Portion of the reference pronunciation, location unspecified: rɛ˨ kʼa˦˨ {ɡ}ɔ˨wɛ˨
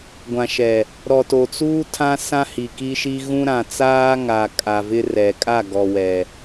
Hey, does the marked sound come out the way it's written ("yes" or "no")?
yes